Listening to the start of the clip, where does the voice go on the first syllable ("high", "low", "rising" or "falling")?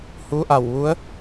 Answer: rising